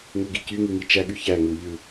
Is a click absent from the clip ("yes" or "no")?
yes